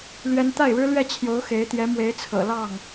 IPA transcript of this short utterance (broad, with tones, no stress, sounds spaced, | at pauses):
l ɥ ɛ˥ n t̪ a˥˩ ɪ̯ ɻ ɻ̩˥ l ɥ ɛ˥˩ t͡ɕʰ j o˧˥ ʊ̯ x e˧˥ ɪ̯ t̪ j ɛ˧˥ m w e˧˥ ɪ̯ t͡sʰ ɤ̰˨˩ l ɑ˥˩ ŋ